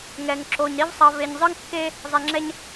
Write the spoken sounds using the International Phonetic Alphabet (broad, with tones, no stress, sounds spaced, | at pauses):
ŋ ɛ˩ ŋ ǁ o˩ ɲ ɾ i˦ v sˤ ʌ˨ v e˨ ɲ zˤ ɯ˥ ŋ kː e˥ | zˤ ɛ˩ ŋ͡ǁ ɛ˨ ɲ